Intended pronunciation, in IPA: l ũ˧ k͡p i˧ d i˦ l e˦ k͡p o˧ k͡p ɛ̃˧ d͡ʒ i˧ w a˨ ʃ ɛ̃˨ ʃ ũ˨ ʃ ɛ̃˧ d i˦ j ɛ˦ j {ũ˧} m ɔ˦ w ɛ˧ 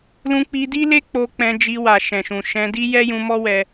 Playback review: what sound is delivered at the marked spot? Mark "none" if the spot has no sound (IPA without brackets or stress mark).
ũ˧